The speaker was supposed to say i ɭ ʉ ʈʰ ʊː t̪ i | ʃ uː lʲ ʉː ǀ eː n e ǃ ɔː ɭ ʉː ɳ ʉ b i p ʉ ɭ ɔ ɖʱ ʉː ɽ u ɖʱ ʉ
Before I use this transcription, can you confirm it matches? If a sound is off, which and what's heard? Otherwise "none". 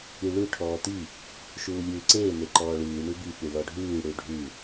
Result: ʊː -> ɔː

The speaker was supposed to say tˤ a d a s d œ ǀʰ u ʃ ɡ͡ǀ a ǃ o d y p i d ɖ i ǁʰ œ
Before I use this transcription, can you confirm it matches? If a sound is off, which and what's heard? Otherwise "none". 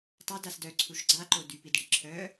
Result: none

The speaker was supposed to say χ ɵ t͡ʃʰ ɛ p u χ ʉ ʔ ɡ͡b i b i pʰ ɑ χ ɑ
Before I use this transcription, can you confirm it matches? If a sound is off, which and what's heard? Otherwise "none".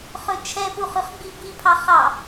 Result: ʔ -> χ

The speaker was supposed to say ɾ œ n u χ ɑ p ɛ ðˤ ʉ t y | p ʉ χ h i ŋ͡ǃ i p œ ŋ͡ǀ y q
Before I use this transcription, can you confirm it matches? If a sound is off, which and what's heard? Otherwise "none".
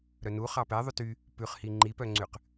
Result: none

